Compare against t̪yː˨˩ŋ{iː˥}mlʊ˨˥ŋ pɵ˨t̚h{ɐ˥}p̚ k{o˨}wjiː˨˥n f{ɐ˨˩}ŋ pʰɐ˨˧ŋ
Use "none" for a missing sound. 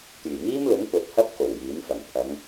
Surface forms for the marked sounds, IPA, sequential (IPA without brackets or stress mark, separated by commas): iː˥, ɐ˥, o˨˩, ɐ˨˩